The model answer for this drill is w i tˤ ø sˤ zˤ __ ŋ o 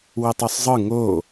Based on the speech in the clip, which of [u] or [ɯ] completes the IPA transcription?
ɯ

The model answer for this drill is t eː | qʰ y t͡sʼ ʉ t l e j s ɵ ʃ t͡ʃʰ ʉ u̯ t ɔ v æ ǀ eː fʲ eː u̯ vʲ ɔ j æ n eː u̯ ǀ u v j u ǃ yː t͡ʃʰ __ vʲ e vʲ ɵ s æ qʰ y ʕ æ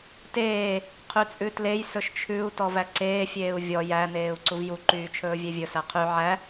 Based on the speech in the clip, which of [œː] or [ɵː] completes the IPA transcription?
ɵː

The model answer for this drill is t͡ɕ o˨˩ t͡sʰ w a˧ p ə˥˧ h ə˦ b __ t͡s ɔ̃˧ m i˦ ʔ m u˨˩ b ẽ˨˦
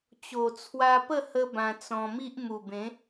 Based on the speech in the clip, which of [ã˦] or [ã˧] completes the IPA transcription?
ã˧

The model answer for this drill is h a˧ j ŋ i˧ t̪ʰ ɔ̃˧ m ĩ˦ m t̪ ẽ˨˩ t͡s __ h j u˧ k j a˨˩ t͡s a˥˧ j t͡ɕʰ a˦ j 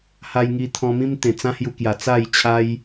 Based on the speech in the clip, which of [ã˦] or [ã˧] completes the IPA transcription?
ã˦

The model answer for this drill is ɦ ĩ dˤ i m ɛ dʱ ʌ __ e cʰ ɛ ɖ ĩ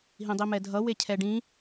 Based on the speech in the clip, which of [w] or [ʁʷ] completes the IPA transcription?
w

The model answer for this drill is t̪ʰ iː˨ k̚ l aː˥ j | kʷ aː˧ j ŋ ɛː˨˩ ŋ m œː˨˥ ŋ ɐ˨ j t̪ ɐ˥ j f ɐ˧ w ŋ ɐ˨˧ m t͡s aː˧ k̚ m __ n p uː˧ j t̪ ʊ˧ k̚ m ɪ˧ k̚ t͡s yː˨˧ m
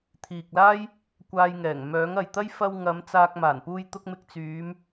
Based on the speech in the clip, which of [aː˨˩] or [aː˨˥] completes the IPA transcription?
aː˨˩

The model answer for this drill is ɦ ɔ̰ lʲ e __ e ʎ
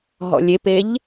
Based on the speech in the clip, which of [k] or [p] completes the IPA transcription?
p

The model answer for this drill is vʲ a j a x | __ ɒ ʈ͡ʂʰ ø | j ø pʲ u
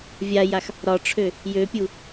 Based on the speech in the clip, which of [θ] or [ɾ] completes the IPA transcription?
ɾ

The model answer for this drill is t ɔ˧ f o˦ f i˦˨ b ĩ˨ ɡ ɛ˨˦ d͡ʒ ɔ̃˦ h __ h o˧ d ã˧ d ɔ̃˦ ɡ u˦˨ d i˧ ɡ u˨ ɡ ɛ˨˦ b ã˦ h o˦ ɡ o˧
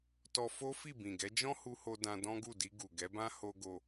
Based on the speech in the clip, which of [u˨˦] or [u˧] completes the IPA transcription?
u˧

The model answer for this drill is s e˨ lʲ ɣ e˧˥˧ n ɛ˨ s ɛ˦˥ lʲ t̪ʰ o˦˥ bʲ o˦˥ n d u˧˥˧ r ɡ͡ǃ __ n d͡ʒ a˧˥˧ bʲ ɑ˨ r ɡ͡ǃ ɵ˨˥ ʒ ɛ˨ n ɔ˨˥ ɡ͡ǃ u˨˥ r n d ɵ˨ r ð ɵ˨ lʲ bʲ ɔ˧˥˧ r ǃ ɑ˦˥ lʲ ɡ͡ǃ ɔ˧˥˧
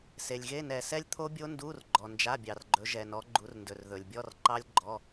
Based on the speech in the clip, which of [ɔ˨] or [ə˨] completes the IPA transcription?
ɔ˨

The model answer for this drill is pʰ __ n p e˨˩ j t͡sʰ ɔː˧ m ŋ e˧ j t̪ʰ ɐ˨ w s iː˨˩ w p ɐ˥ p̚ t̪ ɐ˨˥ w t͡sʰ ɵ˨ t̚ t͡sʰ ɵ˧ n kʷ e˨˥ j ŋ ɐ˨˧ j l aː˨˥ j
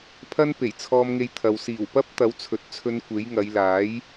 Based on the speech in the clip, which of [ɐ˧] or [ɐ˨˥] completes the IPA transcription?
ɐ˧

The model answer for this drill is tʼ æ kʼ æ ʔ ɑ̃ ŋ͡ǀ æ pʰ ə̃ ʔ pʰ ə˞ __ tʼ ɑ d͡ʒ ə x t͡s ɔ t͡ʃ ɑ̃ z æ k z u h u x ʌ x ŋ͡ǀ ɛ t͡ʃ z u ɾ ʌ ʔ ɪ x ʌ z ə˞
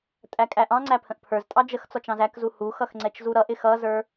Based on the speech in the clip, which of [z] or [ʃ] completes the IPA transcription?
z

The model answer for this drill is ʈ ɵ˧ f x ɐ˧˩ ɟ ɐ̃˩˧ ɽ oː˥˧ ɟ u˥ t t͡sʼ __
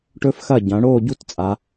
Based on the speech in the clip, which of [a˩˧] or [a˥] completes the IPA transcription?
a˩˧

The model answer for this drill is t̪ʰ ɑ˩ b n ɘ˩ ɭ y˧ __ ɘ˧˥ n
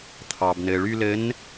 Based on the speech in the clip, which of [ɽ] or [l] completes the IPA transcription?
l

